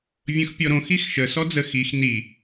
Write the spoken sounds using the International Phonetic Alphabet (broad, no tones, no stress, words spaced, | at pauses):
vʲə̃xpʲɔɾõ xixʃə sɔd͡zə xix ni